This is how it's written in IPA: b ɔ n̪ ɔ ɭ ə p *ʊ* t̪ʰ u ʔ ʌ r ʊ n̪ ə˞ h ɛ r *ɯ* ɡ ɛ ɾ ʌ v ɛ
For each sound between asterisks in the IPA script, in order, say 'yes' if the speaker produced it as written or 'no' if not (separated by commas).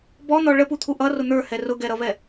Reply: no, no